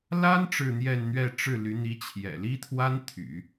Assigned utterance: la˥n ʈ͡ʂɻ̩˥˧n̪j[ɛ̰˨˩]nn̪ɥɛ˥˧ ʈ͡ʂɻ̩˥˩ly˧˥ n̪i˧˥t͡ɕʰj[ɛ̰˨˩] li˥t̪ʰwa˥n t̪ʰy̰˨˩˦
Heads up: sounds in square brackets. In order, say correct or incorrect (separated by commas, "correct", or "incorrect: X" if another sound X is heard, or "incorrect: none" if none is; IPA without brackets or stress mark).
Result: incorrect: ɛ˥˧, correct